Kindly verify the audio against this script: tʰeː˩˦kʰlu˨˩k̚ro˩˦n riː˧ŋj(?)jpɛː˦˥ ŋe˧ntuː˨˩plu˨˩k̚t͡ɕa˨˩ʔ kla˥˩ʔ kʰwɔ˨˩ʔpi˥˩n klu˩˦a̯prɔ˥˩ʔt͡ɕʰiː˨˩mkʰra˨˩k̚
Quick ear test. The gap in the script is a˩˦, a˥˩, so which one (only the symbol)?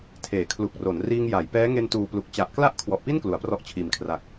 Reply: a˩˦